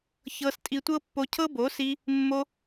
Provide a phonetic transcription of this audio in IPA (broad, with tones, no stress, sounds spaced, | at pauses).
ç ɤ˧ s tʼ i˧ tʷ ɤ˦ pː o˧ cʰ ɤ˦ b o˨˦ s i˧ | mː o˧